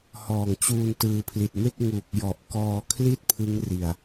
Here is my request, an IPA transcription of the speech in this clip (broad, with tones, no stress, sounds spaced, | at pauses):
h ɔː˨˩ ŋ t͡ɕ uː˧ n t ɯː˧ pʰ l i˨˩ t̚ m e˥˩ k̚ ŋ u˨˩ k̚ j ɔ˨˩ ʔ k ɔː˧ kʰ l i˥˩ t̚ pʰ ɯ˦˥ ŋ r i˨˩ a̯